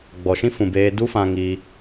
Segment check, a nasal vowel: present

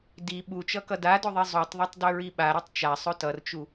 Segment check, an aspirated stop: absent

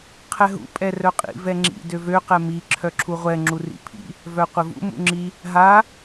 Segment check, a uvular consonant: present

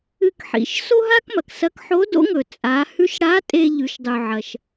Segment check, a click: absent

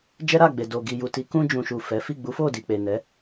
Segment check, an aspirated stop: absent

